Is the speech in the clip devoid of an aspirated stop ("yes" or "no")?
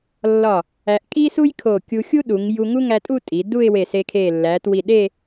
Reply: no